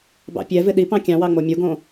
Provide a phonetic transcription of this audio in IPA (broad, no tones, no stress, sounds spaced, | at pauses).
b ɑ̰ pʲ ɛ v ɪ ɗ i p ɑ̃ kʲ ɑ̃ w ɑ ŋ͡m o mʲ u ɡ õ